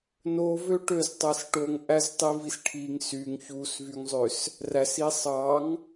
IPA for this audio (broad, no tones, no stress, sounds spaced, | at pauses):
n o v ø ʈ ø z tˤ æ s ʈ o ŋ ʔ æ z tˤ i v i s ʈʰ i ŋ s y ŋ ç u s v y ŋ zˤ ø s | r æ s i sˤ ɑ ŋ